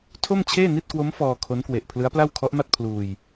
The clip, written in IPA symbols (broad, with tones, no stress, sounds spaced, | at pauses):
tʰ o˥˩ m t͡ɕʰ eː˥˩ n i˥˩ t̚ k w o˦˥ m f ɔː˧ kʰ o˦˥ n k w e˨˩ ʔ pʰ l ɯ˦˥ a̯ p l a˥˩ w kʰ ɔ˦˥ ʔ m a˥˩ t̚ pʰ l uː˧ j